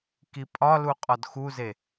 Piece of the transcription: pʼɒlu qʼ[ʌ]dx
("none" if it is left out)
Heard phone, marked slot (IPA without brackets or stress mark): ɒ